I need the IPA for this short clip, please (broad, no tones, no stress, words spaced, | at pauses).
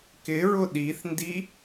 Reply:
kɪɹʊ ɗiθndi